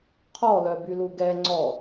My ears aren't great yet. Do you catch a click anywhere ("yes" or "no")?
yes